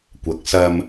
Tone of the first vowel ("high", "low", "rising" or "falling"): rising